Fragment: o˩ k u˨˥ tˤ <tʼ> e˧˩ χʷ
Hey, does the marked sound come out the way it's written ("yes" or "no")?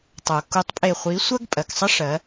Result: no